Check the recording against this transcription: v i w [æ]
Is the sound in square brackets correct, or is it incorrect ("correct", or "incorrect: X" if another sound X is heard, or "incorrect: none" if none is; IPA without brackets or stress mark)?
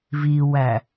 correct